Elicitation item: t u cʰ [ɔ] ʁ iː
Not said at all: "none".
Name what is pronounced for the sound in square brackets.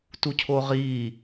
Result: o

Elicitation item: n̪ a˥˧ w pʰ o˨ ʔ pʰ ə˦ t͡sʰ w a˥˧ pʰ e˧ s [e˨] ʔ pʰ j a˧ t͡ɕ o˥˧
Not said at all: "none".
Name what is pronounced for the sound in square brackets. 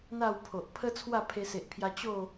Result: e˨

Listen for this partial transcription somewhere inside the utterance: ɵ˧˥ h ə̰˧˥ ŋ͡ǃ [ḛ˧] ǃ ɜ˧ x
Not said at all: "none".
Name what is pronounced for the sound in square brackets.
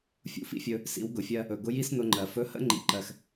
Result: ḭ˧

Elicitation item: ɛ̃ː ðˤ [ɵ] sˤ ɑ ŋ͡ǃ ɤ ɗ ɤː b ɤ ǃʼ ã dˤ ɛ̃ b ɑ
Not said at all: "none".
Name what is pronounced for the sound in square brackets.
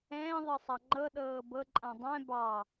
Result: ɤ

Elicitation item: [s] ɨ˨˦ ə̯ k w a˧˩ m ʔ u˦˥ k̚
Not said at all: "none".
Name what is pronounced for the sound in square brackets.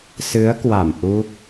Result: s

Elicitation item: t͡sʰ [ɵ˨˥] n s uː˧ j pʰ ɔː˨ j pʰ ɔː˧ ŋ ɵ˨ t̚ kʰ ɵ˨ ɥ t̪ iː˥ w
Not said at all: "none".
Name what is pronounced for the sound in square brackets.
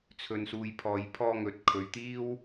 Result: ɵ˧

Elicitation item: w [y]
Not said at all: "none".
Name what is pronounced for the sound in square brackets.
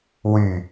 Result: y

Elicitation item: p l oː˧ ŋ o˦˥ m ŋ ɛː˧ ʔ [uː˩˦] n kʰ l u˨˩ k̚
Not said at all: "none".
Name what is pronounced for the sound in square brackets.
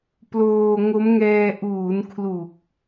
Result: uː˩˦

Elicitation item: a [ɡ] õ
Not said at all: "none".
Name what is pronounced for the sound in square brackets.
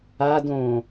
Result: d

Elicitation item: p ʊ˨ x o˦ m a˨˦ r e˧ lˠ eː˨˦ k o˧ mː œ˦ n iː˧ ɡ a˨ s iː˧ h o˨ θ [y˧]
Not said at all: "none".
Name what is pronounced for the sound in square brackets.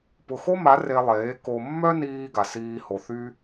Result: y˧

